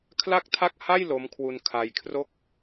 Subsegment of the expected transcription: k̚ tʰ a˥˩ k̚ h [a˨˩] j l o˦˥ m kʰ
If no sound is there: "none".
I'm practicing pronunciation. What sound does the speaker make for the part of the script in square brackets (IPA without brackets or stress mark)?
a˥˩